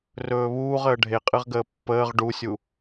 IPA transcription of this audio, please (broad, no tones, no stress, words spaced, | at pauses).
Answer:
rɵːβuːʁəː ɖʱeqʼɨʁɡəː pːəːʁ ɖusʲu